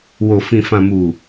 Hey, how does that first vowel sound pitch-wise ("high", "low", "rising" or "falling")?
low